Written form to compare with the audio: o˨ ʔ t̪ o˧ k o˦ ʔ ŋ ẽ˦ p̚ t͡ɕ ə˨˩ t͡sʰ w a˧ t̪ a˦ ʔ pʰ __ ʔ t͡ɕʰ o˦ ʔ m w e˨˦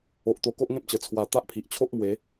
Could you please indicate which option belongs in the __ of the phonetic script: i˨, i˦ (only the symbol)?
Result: i˨